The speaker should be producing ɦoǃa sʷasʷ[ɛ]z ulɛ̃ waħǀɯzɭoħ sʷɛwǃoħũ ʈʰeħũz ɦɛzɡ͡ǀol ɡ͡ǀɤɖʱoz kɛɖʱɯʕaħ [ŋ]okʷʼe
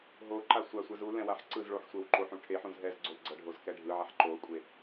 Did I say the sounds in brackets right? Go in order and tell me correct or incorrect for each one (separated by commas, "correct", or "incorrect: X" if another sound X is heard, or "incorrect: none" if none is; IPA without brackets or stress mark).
correct, incorrect: ǃ